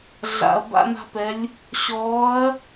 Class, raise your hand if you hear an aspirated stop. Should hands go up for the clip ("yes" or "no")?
no